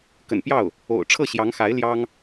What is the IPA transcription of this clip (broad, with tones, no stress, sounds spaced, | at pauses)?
k ə̰˨˩ n p j ɑ˥˩ ʊ̯ | o̰˨˩ ʊ̯ ʈ͡ʂʰ ɤ˥˩ ɕ j ɑ˧˥ ŋ x a˧˥ ɪ̯ l j ɑ˥ ŋ